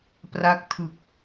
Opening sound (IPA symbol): p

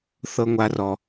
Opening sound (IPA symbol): θ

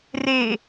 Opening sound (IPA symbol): r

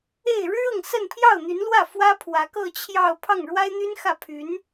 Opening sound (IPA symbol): e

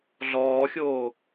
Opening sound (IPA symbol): ɮ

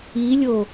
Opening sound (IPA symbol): i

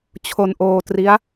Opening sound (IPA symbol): t͡ɕʰ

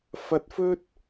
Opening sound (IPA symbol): f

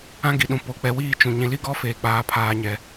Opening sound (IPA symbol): ã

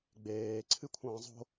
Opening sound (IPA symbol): ɡ͡b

